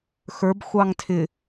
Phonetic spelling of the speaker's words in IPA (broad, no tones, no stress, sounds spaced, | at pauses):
x ə˞ b xʷ ɑ ŋ tʰ ɪ